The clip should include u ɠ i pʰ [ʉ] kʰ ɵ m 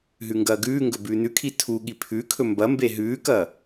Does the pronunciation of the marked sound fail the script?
no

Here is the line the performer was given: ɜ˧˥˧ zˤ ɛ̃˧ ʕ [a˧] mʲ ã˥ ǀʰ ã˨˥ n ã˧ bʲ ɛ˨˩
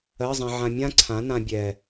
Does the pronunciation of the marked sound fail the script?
yes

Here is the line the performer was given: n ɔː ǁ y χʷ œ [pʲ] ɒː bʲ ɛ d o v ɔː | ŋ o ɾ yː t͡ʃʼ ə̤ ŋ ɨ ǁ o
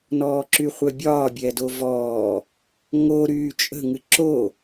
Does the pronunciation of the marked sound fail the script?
yes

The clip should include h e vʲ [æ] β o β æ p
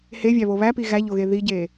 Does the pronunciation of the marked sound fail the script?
no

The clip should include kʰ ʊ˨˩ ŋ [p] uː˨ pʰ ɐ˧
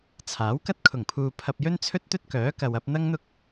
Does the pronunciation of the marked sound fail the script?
yes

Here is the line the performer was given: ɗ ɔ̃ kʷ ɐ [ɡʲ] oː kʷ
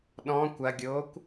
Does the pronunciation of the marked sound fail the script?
no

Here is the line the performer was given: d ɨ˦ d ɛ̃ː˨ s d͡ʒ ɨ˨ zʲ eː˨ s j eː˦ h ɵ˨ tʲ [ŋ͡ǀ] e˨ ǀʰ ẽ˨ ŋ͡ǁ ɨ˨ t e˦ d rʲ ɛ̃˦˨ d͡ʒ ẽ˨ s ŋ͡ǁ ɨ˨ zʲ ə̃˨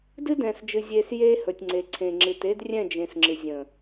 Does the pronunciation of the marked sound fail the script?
no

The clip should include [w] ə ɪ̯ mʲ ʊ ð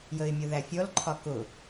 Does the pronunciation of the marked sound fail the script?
yes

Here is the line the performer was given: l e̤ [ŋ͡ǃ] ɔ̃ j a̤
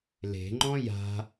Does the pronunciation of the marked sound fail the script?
no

